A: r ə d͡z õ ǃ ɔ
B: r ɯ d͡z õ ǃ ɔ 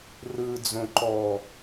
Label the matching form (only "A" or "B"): B